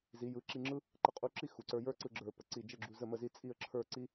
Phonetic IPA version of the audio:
z i˩˧ j ɯ˩˧ ǁ i˧ ŋ͡ǁ ɯ˥ | ǃ ə˧ qʼ u˧ ǁ i˥ x u˩˧ ǀ ə˞˧ j ə˞˥ ǀ ɯ˧ ɡ͡ǁ ə˞˧˩ p ə˧˩ ǀ i˧˩ d͡ʒ ə˥˧ ɡ͡ǁ u˧ z ə˥˧ m ə˥˧ z i˥˧ t͡sʼ i˥˧ ə̯ ǁʰ ə˞˥˧ ǀ i˥

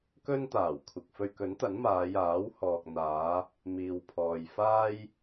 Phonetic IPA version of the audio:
k ɵ˥ n t̪ aː˨˩ w kʷʰ ɪ˨ k̚ f ɵ˧ ɥ k ɵ˨˥ n t̪ ɐ˨˥ n m aː˨˧ j aː˨˥ w h ɔː˨ k̚ n̪ aː˨˧ | m iː˨ w pʰ ɔː˨ j f aː˥ j

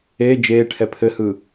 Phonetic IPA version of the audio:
e d͡ʒ eː ʈʰ ɛ pʰ ɘ h ɯː

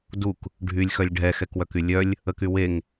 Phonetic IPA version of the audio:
d u k | ɖʱ y lʲ x œ lʲ ɖʱ ɛ x ɛ k w œ k y lʲ œ lʲ | ə k y w e ŋ

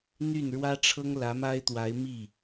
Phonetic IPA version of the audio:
n̪ y˥˩ n ɻ w ä˥ ʈ͡ʂʰ ɤ˥ ŋ l ä˧˥ m a˥ ɪ̯ t̪ w a˧˥ ɪ̯ m i˥˩

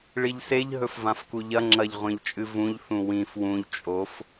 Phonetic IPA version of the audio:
ɭ i ʎ s e ʎ ɦ ɵ f v ã f k u ʎ ɐ ŋ͡ǁ ɐ ʎ ʁʷ ẽ ʎ t͡ʃʼ ɨ v ũ ʎ θ ũ w ĩ f w ũ ʎ t͡ʃʼ o f

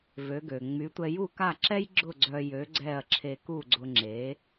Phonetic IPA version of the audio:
v ø˩˥ ɡ ø˩ ŋ͡m y˩˥ tʷ ɛ˧ j u˥˩ k a˥˩ ǁ ɛ˥ j ɡ͡ǁ ʊ˥˩ ɡ͡ǀ œ˧ j ø˩˥ ɡ͡ǀ ɛ˥˩ ɐ̯ ǁʰ e˧ k u˥˩ ɡ͡ǀ ʊ˧ ŋ͡ǁ e˩˥

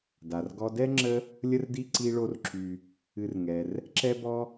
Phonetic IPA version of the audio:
d a˩ r ɡ ɔ˦ d ɛ˥ ŋ͡ǁ ə˦ | lʲ ə˦ r d i˦ ǀ i˦ ɭ o˦ r ǁ y˨ | ɨ˨ r ŋ ɛ˩ r | ǁ ɛ˦ b ɔ˦

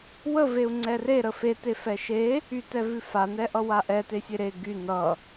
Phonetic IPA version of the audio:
w ə v e u̯ ŋ͡ǀ ɛ r e ɾ ə f e t e f ɛ ʃ e | y t ɛ v ʉ f a n ɛ ʔ ʌ w a ʔ ɛ t e sʲ e ɾ e ɡ y n ʌ

